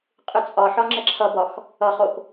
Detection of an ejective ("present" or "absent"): present